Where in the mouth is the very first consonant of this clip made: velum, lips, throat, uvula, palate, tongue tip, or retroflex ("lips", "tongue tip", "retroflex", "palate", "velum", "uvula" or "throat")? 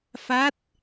lips